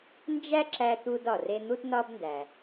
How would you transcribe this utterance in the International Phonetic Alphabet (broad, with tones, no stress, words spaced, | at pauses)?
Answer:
nd͡ʒæ˥ǁæ˧t̪u˧d ɒ˩re˧ n̪u˧tnɒ˧bndæ˩